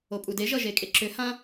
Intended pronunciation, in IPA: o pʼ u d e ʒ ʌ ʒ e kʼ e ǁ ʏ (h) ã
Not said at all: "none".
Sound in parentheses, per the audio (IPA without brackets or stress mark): h